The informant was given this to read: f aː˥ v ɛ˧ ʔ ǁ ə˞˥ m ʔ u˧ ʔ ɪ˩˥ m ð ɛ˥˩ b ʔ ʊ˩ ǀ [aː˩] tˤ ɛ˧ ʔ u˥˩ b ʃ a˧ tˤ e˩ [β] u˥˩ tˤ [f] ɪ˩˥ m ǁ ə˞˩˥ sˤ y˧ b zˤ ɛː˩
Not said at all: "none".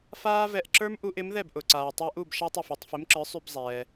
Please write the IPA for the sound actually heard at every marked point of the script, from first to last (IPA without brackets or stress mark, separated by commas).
aː˩, f, f